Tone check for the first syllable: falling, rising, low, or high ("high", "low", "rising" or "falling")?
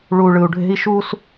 low